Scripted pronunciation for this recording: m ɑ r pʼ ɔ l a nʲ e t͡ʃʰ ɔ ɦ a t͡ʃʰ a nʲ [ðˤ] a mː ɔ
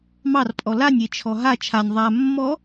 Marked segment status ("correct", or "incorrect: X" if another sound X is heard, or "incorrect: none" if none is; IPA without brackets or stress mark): correct